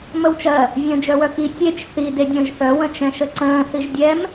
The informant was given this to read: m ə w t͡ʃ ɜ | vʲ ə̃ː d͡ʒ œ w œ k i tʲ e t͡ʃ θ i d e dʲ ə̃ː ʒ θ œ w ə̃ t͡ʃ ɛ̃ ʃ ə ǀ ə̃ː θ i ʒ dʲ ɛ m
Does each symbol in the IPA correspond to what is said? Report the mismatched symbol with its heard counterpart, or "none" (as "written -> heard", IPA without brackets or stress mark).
none